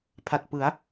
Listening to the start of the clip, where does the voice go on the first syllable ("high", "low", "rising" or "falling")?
low